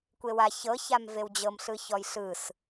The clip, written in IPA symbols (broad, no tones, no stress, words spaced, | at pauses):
kʷewa çɤ çamvewd͡ʑɤm ɬɯçɔjɬɯs